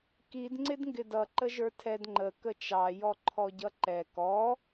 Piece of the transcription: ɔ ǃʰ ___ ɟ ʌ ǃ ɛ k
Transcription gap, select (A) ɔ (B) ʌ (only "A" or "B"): A